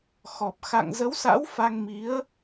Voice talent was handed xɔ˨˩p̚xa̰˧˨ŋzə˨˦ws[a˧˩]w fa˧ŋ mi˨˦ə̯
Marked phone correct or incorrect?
incorrect: a̰˧˥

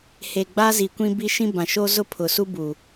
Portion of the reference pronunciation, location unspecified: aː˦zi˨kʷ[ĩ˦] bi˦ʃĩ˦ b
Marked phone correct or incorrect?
correct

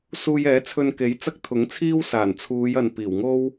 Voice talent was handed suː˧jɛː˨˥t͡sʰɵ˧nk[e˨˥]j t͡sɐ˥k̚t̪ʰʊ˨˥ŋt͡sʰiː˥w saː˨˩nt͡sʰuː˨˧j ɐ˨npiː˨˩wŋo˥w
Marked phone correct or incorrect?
correct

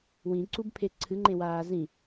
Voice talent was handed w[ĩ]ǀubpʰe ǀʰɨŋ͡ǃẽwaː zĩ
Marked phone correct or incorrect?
correct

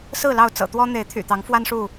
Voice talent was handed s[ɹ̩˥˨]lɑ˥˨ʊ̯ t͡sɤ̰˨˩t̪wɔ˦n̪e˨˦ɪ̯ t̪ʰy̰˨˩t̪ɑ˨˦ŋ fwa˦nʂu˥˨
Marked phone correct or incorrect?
correct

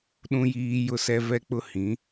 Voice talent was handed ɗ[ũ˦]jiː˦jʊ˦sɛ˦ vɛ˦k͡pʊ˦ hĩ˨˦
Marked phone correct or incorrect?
correct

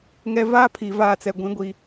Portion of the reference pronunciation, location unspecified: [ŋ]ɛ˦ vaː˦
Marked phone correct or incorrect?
correct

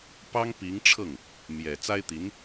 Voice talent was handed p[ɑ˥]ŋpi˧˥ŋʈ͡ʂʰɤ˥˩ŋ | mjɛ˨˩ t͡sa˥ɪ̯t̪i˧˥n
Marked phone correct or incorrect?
correct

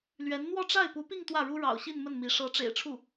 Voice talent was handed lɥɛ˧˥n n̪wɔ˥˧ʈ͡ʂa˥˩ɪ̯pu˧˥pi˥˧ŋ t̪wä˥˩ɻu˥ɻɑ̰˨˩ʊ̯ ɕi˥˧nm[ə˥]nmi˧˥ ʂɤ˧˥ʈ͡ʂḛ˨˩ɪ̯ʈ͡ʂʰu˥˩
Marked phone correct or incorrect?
incorrect: ə˥˩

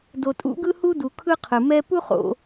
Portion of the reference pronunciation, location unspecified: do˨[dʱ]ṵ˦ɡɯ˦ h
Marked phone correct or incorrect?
incorrect: tʼ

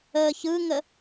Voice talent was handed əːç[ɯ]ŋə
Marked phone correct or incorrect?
correct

